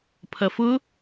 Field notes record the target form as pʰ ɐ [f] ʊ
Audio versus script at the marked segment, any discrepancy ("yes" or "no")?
no